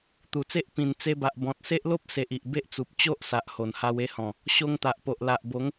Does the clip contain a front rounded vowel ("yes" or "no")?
no